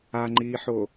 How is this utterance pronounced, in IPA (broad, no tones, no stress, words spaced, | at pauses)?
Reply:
aŋ͡ǃiːħo